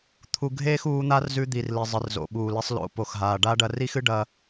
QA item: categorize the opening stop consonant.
aspirated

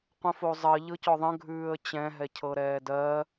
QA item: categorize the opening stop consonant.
plain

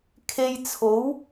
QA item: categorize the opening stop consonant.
aspirated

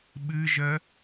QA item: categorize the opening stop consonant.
implosive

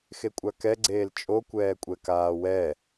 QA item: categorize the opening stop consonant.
ejective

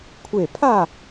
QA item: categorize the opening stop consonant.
aspirated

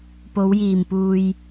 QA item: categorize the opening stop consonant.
plain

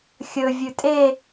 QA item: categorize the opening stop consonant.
ejective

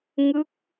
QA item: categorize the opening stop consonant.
plain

